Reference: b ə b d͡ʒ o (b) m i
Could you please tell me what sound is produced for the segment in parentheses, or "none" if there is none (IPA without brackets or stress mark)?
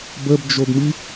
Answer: b